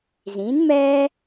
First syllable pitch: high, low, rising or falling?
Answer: rising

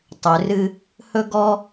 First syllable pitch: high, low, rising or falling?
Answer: low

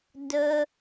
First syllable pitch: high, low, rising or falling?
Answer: high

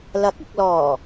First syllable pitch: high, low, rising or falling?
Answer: rising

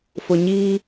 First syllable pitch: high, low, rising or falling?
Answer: low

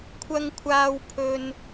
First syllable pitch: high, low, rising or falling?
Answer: high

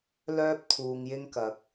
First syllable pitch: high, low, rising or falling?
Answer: high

